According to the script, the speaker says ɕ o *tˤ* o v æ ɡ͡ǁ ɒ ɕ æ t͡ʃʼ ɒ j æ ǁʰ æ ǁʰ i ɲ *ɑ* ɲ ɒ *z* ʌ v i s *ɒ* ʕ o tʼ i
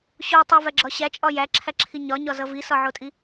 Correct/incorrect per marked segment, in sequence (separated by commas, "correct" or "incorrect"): correct, incorrect, correct, correct